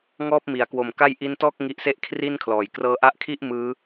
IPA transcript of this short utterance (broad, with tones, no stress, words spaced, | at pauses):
ŋɔː˥˩p̚mi˩˦a̯kwo˨˩mka˥˩j ʔi˦˥ntɔː˥˩k̚ ŋi˦˥ʔse˥˩ʔkʰri˥˩nkʰlɔː˨˩j krɤː˧ʔa˦˥ʔkʰi˥˩ʔ mɯː˦˥